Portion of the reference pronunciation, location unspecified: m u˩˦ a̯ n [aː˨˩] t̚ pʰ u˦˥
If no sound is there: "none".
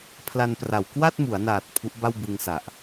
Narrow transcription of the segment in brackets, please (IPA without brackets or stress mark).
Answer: aː˨˩